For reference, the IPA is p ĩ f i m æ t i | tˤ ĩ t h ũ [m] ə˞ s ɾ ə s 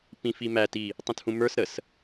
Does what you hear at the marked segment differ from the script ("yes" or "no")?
no